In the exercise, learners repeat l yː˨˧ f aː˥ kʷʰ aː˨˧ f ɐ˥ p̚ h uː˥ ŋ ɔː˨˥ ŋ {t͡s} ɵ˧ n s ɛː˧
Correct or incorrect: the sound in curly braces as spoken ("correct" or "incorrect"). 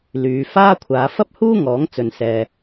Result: correct